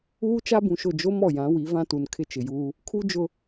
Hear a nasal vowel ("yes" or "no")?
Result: yes